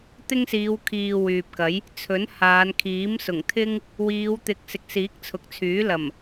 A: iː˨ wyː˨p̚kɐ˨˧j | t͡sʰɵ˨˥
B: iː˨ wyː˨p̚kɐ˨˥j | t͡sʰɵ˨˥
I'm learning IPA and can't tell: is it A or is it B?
B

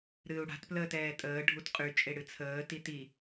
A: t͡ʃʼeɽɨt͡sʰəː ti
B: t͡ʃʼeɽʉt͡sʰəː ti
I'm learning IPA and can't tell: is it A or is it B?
A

